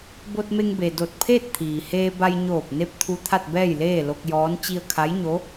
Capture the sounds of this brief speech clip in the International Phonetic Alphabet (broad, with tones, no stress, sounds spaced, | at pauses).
b o˧ t̚ m e˧ ŋ b e˩ d o˧˩ t̚ pʰ eː˥˨ t̚ t̪ʰ iː˩ h eː˧ b a˧ j ɲ oː˧˩ p̚ n e˥˨ p̚ t̪ʰ u˧ t̪ʰ a˥˨ t̚ b ɛː˥˨ j l eː˥˨ l o˧ k̚ j ɔː˧˥ n t͡ɕ i˧ ə̯ kʰ a˧˥ j ɲ o˧˥